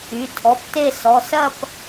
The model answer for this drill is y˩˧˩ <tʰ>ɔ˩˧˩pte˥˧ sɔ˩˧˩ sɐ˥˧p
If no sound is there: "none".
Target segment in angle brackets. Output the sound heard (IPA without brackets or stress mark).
tʰ